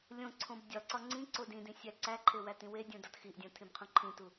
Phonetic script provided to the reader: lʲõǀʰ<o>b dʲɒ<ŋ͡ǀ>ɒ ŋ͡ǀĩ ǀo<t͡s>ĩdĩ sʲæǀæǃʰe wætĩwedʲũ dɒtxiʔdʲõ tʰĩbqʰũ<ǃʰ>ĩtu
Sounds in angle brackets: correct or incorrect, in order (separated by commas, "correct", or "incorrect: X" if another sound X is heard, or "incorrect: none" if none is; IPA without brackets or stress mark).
incorrect: õ, incorrect: ǀ, incorrect: d, correct